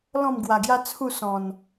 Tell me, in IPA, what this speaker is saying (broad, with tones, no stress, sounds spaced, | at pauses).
l ɔ̃˥˧ m ɡ w a˨˩ ɡ j a˦ t͡sʰ u˥˧ s ɔ̃˨˩ n